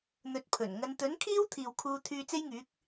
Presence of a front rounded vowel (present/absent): present